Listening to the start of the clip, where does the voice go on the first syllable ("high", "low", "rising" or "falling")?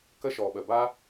high